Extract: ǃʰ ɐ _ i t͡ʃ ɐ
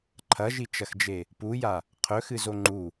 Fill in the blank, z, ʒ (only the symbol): ʒ